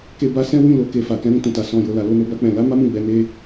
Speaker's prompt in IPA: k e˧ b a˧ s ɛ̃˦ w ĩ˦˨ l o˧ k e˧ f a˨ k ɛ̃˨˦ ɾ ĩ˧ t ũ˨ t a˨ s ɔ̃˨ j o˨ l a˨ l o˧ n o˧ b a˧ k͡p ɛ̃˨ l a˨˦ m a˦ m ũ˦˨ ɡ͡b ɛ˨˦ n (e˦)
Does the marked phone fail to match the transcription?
no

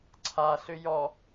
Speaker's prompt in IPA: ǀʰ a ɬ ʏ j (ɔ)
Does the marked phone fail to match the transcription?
no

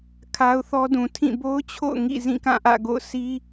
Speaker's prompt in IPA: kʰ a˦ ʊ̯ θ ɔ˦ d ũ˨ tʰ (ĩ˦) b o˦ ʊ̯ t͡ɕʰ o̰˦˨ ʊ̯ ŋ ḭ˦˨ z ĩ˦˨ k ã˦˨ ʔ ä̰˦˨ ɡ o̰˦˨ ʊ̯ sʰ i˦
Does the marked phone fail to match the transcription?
yes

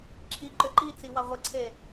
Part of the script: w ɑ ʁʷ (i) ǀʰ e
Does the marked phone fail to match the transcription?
yes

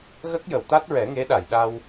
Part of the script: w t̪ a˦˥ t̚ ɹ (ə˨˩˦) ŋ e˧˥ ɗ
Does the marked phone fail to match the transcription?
yes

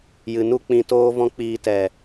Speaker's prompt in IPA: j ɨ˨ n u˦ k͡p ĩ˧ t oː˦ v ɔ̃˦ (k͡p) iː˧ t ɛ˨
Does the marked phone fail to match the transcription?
no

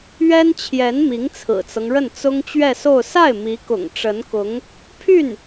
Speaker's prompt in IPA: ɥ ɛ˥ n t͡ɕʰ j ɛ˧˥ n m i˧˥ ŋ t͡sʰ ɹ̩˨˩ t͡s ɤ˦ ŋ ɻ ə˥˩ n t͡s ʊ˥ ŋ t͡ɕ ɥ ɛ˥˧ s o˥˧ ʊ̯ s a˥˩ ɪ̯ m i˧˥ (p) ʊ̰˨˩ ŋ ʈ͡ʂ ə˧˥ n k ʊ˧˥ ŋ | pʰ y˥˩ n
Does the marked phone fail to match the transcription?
yes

